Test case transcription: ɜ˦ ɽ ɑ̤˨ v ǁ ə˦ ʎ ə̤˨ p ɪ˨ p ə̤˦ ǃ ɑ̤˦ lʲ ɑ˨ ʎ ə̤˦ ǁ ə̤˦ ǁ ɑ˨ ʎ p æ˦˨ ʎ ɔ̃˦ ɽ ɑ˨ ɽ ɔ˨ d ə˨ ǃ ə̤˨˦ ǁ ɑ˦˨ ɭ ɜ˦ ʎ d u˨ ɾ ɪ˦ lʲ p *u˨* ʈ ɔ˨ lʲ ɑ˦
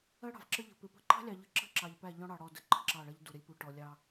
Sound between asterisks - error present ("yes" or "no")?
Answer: no